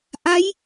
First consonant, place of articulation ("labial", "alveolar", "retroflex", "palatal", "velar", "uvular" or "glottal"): glottal